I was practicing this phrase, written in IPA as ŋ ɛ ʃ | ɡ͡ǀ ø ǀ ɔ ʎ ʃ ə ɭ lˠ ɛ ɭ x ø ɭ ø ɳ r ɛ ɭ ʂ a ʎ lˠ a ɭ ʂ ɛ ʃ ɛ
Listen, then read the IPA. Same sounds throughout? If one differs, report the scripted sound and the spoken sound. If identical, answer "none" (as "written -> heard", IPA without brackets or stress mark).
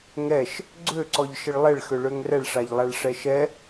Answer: ɳ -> ŋ